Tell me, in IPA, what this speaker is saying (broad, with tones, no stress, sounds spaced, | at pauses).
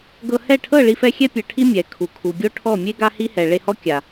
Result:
ɡ ɤ˧ h ɛ˦˨ ʈʰ ɤ˦˨ ɭ i˦ f ɛ˦ xʲ ɛ˦ pʲ ɤ˨ ʈʰ i˦ mʲ ɛ˨ kʰ u˨ kʰ u˨ ɡʲ o˦ ʈʰ ɔ˦˨ mʲ e˦ ɡ a˦ h i˦ h ɛ˨ ɭ e˧ h ɔ˦ kʲ a˨